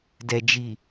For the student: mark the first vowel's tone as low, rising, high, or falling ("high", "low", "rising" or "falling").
low